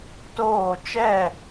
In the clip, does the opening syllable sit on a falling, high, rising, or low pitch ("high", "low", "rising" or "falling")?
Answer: falling